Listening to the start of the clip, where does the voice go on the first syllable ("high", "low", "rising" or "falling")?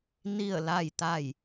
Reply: falling